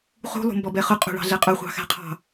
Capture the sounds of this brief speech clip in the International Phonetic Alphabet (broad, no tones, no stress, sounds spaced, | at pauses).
χ ṳ lˠ ṳ m b ɔ b ɛ χ ʊ qʼ ṳ ɭ ɑ̤ ɮ ɛ qʼ ʊ χʷ ɑ̤ x æ̤ qʰ ɑ̤